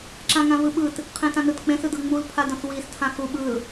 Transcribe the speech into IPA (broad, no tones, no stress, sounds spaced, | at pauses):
ǁ ã ŋ ã v ɯ ɓ ɯ t | qʰ ẽ t ã n ɯ t k͡p ẽ s ɯ d ɤ ŋ͡m u l pʰ a d ɔ̃ s w i s tʰ ã x u ɓ ɯ l